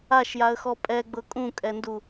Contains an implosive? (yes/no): no